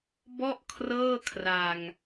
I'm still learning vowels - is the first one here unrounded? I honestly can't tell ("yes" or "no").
no